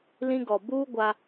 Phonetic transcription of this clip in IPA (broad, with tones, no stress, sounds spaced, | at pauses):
l ĩ˦ ɡ ɔ˨ b uː˦ ɡʷ a˦